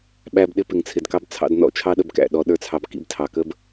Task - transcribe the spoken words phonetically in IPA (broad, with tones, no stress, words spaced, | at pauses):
ɓæ˧b ɗɪ˧pɪ˨ŋt͡sʰɪ˨dkɑ˧b t͡sʰɑ̰˧dnɔ̰˦t͡ʃʰɑ˦ ɗə˧bkæ̰˨ ɗɔ˧ɗə˞˦t͡sʰɑ˧b kḭ˧btʰɑ˨kə˦b